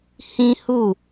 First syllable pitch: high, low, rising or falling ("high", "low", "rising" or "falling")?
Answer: high